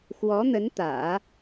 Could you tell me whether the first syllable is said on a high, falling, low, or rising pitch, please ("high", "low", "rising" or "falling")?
rising